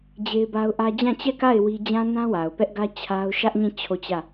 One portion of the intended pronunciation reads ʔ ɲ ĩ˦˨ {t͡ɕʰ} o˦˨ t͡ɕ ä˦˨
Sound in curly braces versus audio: correct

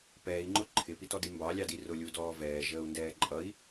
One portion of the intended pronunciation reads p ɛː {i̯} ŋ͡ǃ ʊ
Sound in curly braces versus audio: correct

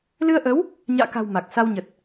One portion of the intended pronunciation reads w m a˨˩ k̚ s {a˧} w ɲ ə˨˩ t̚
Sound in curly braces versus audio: correct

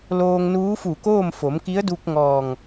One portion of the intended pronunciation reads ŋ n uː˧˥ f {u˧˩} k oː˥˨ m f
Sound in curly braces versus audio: correct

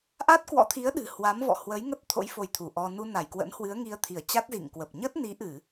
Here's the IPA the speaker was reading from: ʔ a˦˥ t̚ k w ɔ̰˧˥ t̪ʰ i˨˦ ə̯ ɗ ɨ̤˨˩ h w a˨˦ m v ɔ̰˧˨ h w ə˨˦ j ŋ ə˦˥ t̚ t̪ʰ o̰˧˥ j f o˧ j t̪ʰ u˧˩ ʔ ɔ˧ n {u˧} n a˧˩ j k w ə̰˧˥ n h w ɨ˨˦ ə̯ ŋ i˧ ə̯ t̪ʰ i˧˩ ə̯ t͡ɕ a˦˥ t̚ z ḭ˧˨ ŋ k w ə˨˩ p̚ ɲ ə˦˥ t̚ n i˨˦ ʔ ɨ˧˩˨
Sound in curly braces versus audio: correct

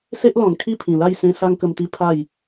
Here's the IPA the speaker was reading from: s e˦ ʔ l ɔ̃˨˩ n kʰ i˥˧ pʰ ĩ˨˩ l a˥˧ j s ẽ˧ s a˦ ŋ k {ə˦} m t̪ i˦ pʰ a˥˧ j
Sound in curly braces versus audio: incorrect: ə˧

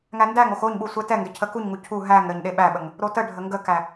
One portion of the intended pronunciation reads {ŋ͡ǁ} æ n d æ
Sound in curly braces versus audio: incorrect: ŋ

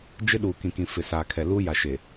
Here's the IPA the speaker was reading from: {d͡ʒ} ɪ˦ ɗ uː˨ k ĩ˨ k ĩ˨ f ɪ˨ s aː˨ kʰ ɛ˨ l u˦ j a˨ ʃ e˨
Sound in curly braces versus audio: correct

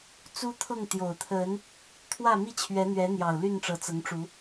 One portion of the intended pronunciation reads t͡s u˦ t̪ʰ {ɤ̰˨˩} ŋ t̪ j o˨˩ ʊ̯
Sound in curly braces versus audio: incorrect: ɤ˥˨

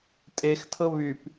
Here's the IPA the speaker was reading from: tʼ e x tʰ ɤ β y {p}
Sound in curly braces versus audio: correct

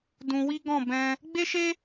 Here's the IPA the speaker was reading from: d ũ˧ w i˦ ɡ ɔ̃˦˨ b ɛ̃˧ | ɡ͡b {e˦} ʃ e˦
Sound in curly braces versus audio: correct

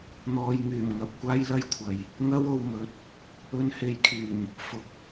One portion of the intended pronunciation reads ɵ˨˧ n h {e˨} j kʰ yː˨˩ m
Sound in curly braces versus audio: correct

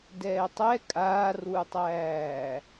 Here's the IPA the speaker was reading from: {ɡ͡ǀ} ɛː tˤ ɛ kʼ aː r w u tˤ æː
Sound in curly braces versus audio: incorrect: d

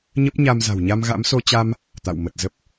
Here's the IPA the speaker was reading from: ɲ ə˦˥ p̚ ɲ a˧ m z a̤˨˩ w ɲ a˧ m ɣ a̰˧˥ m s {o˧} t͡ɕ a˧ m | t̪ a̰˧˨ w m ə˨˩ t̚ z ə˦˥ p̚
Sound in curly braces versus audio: correct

